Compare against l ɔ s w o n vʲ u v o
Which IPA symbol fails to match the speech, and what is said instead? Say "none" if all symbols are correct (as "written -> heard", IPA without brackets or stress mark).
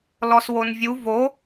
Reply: none